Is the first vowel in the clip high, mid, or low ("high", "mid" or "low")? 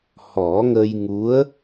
mid